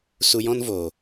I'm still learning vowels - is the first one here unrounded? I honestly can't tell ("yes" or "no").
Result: no